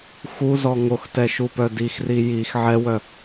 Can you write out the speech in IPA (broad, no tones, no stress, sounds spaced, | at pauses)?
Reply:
x u z ɔ ŋ o x t ɛ ʃ u p œ d i x r i j i x ʕ ɛ w œ